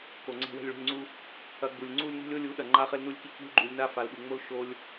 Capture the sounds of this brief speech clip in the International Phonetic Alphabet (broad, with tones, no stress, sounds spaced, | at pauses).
k o˨ ŋ͡ǀ ɛ̤˧ w ɛ̤˧ lʲ ɭ ṳ˨ lʲ ŋ͡ǀ u˧ | ɐ˧ ɡ͡b u˨ lʲ ŋ͡ǀ u˦ lʲ n ṳ˦ lʲ o˦ lʲ u˨˦ ɗ ɐ˨ ŋ͡ǃ a˧ χ ɘ˧ l n u˧ lʲ k i˧ k ṳ˧ lʲ ɡ͡ǃ u˨ lʲ n a˧ f a˨ l ɓ u˨ ŋ͡m o˧ l ʃ o˧ lʲ